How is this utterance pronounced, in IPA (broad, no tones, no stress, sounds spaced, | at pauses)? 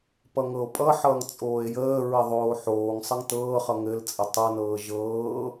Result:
p ʌ ŋ ɤ o̯ pʼ ʌ ħ ʌː ŋ t͡sʼ oː e̯ j əː ɹ ə ðˤ oː ħ oː ŋ sˤ ə ŋ t ɤː χ ʌ ŋ ɘ l t͡sʼ ə tˤ ʌ n ɤː ʒ ɤː